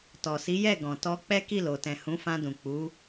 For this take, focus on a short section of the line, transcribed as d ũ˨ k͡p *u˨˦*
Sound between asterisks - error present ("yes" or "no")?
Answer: no